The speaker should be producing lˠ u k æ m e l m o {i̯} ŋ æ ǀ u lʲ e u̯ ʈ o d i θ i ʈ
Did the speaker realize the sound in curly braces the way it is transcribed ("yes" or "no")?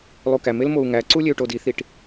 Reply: no